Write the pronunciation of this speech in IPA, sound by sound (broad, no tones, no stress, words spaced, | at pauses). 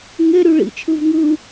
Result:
ŋeɾy ɭḭt͡ʃʰɯv ŋɯ